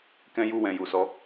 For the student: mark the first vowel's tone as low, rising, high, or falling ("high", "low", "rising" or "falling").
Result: high